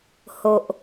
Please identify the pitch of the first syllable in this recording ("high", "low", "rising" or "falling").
low